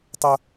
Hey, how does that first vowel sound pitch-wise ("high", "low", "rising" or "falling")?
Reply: high